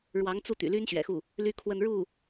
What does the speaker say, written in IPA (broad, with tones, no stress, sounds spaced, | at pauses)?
ɻ w ɑ˧˥ ŋ t͡s u˥˩ t̪ y̰˨˩ l y˥ n ɕ ɥ ɛ̰˨˩ x u˥˩ | l y˥ kʰ w ə˥˧ n ɻ u˥˩